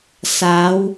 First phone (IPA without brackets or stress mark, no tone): s